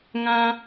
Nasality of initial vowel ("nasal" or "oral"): nasal